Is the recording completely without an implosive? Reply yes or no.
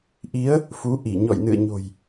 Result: yes